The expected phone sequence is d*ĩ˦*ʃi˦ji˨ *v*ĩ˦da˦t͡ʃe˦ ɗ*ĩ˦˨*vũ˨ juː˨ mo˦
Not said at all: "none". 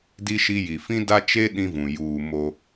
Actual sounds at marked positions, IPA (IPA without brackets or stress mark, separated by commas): i˦, f, ĩ˦